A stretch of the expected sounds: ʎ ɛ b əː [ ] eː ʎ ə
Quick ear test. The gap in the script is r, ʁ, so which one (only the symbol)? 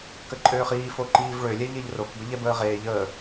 ʁ